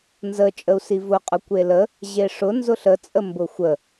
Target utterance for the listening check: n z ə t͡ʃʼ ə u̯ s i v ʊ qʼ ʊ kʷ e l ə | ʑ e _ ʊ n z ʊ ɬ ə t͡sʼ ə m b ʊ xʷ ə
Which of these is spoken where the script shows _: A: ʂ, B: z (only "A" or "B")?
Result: A